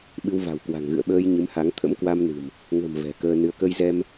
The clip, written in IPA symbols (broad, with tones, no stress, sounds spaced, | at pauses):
ɓ ɨ˧ w v a̤˨˩ w k w a̤˨˩ ŋ ɣ ɨ̰˧˨ ə̯ ɓ əː˧ j ɲ ɨ˨˦ m h a˨˦ ŋ t̪ʰ ə̰˧˥ m k w a˧ m n ɨ̤˨˩ m | ŋ ə̤˨˩ m v ɛ̤˨˩ k əː˧ n ɨ˧ ə̯ k ə˧ j z ɛ˧ m